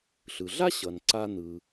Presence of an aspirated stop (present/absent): absent